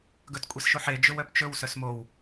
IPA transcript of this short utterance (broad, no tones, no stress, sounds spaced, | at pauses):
ɡ ɵ t kʷʼ e s ʃ o ħ e d͡ʒ ɵ w œ p t͡ʃ ɵ w s œ s m o w